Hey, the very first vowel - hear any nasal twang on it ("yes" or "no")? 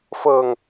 no